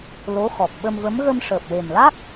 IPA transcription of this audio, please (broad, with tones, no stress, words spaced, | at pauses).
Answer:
lo˧˥xɔ˨˩k̚ ɓə˧mvə˧˥m ɣə˧mʂəː˨˩p̚we˨˩mla˦˥k̚